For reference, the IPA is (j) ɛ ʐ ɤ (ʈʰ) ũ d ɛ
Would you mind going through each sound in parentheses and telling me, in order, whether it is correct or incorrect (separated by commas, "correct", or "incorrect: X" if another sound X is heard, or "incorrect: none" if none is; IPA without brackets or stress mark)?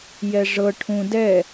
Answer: correct, correct